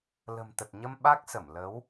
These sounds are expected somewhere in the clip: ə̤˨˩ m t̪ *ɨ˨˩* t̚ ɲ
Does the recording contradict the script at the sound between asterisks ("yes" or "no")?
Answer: yes